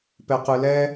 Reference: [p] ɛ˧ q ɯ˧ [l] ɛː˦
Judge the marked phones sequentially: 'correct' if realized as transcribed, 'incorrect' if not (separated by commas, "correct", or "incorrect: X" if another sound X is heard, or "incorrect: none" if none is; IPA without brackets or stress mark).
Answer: correct, correct